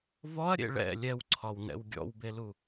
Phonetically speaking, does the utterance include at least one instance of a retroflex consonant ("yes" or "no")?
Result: yes